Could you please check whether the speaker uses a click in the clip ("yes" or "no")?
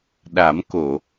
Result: no